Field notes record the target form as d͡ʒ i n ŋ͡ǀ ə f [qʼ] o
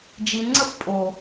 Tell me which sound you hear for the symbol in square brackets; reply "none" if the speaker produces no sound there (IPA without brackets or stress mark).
pʼ